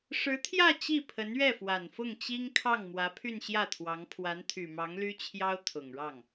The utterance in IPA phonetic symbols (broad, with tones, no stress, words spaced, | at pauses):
ʂɻ̩˧˥t̪ʰjä˥˧ t͡ɕi˥˩pʰə˧˥nɥɛ˥˩fwa˨˩n fʊ˥˩ŋt͡ɕi˥ŋkʰɑ˥˩ŋ mwä˧˥pʰy˥˧nɕjä˥˩t̪ʰwɑ˧˥ŋ pʰwa˧˥nt̪ʰy˨˩mɑ˧˥ŋ ly˥t͡ɕʰjɑ˥ʊ̯ t̪ʰʊ˨˩ŋɻɑ˥˩ŋ